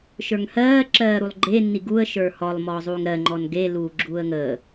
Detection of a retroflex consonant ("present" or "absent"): absent